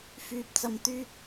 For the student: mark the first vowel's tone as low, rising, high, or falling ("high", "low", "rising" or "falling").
low